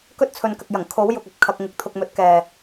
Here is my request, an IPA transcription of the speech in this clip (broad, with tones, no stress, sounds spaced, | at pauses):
k ɵ˥ t̚ t͡sʰ ɵ˨ n k ɐ˨ k̚ j ɐ˨˩ ŋ kʰ o˨˥ w j ʊ˨ k̚ ɐ˨˥ p̚ kʰ ɐ˧ k̚ ŋ ɪ˨˥ k̚ t̪ʰ ʊ˧ k̚ m ɵ˨˥ t̚ k ɛː˨